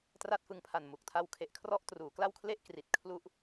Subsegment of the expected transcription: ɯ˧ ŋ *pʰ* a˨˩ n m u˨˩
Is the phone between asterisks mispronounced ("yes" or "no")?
no